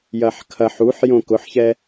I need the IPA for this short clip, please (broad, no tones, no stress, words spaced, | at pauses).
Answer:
jɐħkʰɐħ uħjõ kʊħçɛ